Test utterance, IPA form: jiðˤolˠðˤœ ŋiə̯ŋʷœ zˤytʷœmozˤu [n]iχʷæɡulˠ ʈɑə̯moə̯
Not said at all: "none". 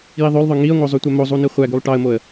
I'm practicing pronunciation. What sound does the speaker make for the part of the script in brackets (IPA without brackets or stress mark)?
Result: n